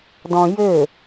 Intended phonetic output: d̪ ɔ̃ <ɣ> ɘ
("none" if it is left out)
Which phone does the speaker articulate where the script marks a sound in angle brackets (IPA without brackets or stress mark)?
j